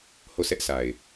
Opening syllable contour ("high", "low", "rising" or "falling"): falling